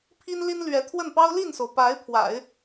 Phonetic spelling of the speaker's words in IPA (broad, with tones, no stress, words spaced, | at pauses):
pʰi˥nli˥nlɥɛ˧˥ t̪ʰwə˥˩npɑ˥ʊ̯ li˥˩nso˩ʊ̯ pa˧˥ɪ̯ pʰwa̰˨˩˦ɪ̯